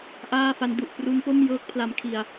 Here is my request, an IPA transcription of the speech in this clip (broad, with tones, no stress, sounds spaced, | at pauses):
ʔ aː˥˩ f a˦˥ n d u˨˩ ʔ p r u˦˥ n p o˥˩ m j ɤː˦˥ k̚ pʰ l a˧ m kʰ i˧ a̯